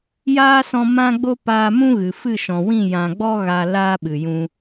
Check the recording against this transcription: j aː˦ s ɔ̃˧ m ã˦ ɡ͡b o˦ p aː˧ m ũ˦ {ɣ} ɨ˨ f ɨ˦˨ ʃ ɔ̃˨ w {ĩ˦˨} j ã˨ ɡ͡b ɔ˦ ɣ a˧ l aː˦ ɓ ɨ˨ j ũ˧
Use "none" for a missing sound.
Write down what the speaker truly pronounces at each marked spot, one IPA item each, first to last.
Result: ɣ, ĩ˦˨

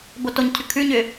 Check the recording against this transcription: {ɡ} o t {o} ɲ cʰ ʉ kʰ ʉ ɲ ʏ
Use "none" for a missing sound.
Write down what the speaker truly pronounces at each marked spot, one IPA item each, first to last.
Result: b, o

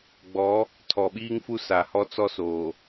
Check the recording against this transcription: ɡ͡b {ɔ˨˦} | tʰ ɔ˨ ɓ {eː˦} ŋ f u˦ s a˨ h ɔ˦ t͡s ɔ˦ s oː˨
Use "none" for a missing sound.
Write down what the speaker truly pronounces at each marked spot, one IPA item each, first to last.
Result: ɔ˨˦, iː˦

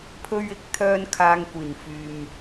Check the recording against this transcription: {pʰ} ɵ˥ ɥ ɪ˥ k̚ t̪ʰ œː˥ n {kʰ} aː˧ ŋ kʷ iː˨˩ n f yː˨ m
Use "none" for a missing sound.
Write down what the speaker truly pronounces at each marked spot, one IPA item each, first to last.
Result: pʰ, kʰ

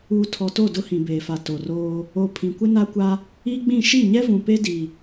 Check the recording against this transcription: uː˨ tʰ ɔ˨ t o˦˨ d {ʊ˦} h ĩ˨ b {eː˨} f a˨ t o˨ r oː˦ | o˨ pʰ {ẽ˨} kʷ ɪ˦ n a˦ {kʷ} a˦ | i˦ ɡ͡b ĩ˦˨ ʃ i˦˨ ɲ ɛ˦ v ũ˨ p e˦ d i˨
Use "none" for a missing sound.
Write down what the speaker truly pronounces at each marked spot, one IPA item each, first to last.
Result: ʊ˦, eː˨, ĩ˨, kʷ

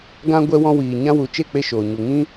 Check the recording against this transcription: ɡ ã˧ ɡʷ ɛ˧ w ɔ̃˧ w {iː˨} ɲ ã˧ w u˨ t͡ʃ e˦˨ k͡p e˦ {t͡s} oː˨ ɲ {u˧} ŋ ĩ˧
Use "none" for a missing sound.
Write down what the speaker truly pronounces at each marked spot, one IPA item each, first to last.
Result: iː˨, ʃ, u˨

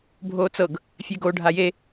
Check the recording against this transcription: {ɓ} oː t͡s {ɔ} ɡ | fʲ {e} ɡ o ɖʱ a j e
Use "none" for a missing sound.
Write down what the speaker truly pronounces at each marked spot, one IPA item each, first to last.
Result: bʱ, ɤ, e

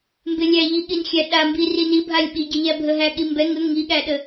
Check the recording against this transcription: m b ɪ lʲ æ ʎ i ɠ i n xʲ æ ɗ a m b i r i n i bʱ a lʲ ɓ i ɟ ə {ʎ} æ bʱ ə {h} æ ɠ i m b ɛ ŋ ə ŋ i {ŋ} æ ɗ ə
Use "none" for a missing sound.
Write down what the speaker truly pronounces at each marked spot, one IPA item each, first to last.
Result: ʎ, ɦ, ɠ

